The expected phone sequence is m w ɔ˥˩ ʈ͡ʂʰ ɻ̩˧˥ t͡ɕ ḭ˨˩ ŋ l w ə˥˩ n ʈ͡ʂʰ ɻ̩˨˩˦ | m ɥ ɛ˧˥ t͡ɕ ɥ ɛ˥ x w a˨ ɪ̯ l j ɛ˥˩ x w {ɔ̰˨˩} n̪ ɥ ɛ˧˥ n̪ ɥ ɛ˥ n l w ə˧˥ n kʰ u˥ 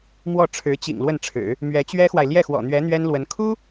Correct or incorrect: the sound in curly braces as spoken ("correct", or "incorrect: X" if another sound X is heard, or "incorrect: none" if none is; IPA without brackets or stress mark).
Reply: correct